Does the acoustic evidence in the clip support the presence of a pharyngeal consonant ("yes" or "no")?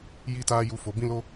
no